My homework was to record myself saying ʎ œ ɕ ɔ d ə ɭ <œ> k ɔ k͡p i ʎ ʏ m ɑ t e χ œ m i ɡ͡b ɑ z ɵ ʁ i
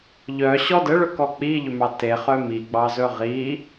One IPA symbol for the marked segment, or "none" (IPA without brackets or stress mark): ɵ